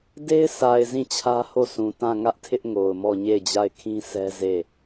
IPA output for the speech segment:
d e˦ ɪ̯ s a˨ ɪ̯ z ĩ˦˨ t͡ɕʰ ä˦ h o˦˨ sʰ ũ˨ t ã˦˨ ŋ ä˦ ʔ tʰ ɪ˦ ʔ ŋ o˨ ʊ̯ m ɔ˦˨ ɲ e˦˨ ɪ̯ d͡ʑ a˦˨ ɪ̯ kʰ ĩ˦ s ɛ˦ z e˦˨

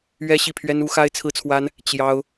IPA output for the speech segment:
ɥ ɛ˥ ɕ i˥˩ pʰ ɥ ɛ˥ n u˧˥ x a˥ ɪ̯ t͡sʰ ɹ̩˥ t͡sʰ w a˥ n | t͡ɕ j ɑ˥ ʊ̯

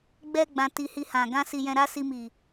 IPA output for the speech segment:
ɡ͡b ɛ˨ ɡ͡b ã˧ t i˧ h i˧ h ã˨ ɡ ã˧ s i˨ j ɛ̃˨ ɾ a˧ s i˧ m i˨

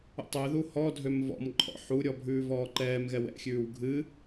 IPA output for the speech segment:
ṵ tˤ ø ð u h ɔ dʱ ø m v ɔ̰ m ǃʼ ɔ̰ ħ u ɾʲ ɔ bʱ ʉː v ɔː ǃ ɛː m ɣ ɛ w ɛ̰ xʲ ʉː w ɡʱ ɨ

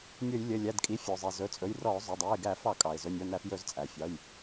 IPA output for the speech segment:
nʲ ɵ˧˩˧ j lʲ ɘ˩˧˩ lʲ æ˩˧˩ d kʼ i˩˧˩ fʲ ɵ˩ zˤ i˩ z ɵ˩˧˩ t͡sʼ ɵ˩˧˩ j r ɔ˧˩˧ ʊ̯ zˤ ɵ˩˧˩ dˤ æ˩˧˩ ɪ̯ ɡ æ˧˩˧ f ɑ˧˩˧ kʼ ɑ˩ ɪ̯ z ɵ˩˧˩ nʲ ɔ˩˧˩ n æ˧˩˧ f j ɵ˧˩˧ z t͡sʼ æ˩ fʲ ɑ˩˧˩ j

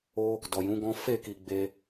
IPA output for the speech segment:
o˧ | d ɔ˨ j ũ˨˦ ɡ ɔ̃˦ f e˦˨ k i˨ ɡ͡b e˧

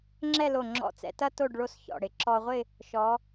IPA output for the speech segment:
ŋ͡ǁ ɛ˥˧ l o˧˩ ŋ͡ǁ ɔ̰˧˩ t͡s ɛ̰˧ t ɐ˥ t o˥˧ ɖ ɭ o˥˧ s ç ɔ̰˧˩ ɽ ɪ˩˧ ǁ ɔ˧ ʁʷ ɪ˥˧ | ʃ ɔ˩˧

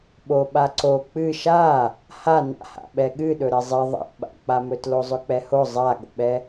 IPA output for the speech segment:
ɓ o ɓ a ǀ o k͡p ɨ ʃ a | h a n a̰ h a̰ ɓ ɛ ɠ ɨ ɗ ɵ ɾ ɛ zˤ ɛ ðˤ a̰ ɓ a̰ k͡p a m ɵ t l o zˤ ɵ k͡p ɛ h o zˤ a ɠ o̰ ɓ ɛ

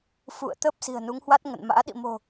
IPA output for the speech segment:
f ṵ˧˨ ə̯ t̪ ə˦˥ p̚ s i̤˨˩ ə̯ n u˨˦ ŋ h w a˦˥ t̚ ŋ ə̰˧˨ n m a̰ː˧˥ ɗ ḭ˧˨ m o̤˨˩

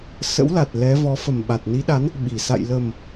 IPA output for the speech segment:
s ə̰˧˥ w l a˨˩ t̚ l ɛ˨˦ v ɔ˨˦ f ə˨˩ m ɓ a˨˩ t̚ n i˨˦ ɗ a˨˦ n | ɓ i˨˩ s a̰˧˨ j l ə˨˩ m

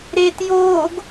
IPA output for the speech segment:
ɾ eː t j oː ɡ

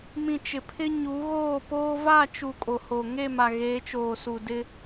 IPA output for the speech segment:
m ĩ˨ t͡ʃ ɪ˨ pʰ ɪ˦ ɲ u˨˦ ɣ oː˦˨ p oː˦ v a˦˨ t͡ʃ u˨ kʼ o˨ h o˨ ŋ e˦˨ m a˨ ɣ eː˨˦ t͡ʃ oː˨ s u˨ d ɪ˦

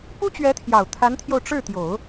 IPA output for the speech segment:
p u˥ t͡ɕ ɥ ɛ˧˥ t̪ʰ j ɑ˨˩ ʊ̯ t̪ʰ a˧˥ n t̪ʰ j o˧ ʊ̯ ʈ͡ʂ ɻ̩˥˩ t̪ j o˨˩˦ ʊ̯

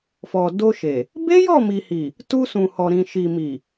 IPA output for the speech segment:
f ɔ˨ d o˧ ʃ e˨ | b e˦ j ɔ˦˨ m i˨ h i˨ | t u˧ s ũ˨ h ɔ˨ ɾ ĩ˨ ʃ i˨ m i˨

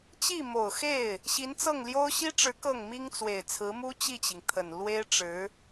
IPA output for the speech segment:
t͡ɕ i˥˩ m o˨˩ ʊ̯ x e˥˩ ɪ̯ | ɕ i˧˥ n t͡s ɤ˥˩ ŋ l j o˥ ʊ̯ ɕ i˥ ʈ͡ʂ ɻ̩˧˥ k ɤ˥˩ ŋ m i˥ ŋ t͡s w e˨˩ ɪ̯ t͡sʰ ɹ̩˧˥ m u˥ t͡ɕ i˥˩ t͡ɕ i˩ ŋ t̪ʰ ə˨˩ n l w e˥ ɪ̯ ʈ͡ʂ ɻ̩˧˥

